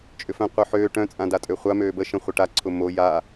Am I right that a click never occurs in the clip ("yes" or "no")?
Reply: no